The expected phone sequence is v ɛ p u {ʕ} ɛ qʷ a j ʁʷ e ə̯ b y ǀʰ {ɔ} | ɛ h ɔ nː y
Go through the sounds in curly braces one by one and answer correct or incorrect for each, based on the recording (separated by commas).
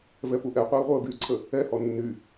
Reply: incorrect, incorrect